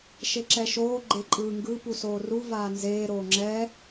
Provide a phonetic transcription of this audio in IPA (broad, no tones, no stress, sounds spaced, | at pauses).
ʃ e ǁ ɛ ʃ oː ɡ͡ǃ e ǃʼ ɯː ŋ ɡ ɯ p u s oː r u v aː n z eː ɾ oː ŋ͡ǁ ɛː